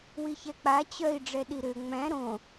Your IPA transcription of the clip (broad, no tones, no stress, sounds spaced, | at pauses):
w i ç ɛ k͡p a t͡ɕ œ i̯ ɖ͡ʐ ɛ ɗ i ɾ ø ŋ͡m æ̃ ɾ õ